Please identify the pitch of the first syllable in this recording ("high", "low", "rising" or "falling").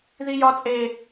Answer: high